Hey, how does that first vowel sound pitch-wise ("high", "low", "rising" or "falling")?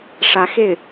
rising